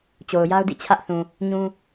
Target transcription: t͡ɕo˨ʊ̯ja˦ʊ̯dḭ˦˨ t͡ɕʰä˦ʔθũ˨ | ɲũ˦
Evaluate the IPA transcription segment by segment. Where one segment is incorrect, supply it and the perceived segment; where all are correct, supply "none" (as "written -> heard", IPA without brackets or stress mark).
none